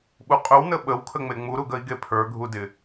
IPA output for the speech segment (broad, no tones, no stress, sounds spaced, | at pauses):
ɓ u qʼ ɵ w n ə ɓ ə w kʰ ə ŋ͡m e ŋ͡m u ɾ u ɡ ə i̯ ɡ e pʰ ə˞ ɡʱ u d ɪ